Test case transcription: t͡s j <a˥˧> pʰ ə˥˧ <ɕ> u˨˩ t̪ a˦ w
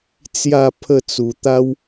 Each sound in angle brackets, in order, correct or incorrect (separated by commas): correct, incorrect